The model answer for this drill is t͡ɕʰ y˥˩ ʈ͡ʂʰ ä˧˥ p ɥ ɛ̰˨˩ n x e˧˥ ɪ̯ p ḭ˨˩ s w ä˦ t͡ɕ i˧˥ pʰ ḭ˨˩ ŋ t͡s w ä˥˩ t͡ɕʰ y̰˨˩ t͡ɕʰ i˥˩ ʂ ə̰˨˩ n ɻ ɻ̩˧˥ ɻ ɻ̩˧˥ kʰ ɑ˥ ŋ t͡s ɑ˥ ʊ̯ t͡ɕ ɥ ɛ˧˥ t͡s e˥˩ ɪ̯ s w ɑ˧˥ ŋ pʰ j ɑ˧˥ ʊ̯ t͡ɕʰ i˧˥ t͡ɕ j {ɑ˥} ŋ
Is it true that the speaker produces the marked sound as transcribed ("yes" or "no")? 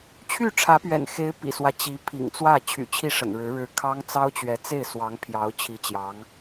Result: no